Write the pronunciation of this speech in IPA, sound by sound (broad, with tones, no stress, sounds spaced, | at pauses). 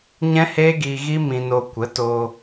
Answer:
ɲ ɛ̃˦ h eː˦ ɡ iː˧ ɣ i˦ m ĩ˧ n o˧ kʷ ə˨˦ t o˧